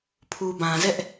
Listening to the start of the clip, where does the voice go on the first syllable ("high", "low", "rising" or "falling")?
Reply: low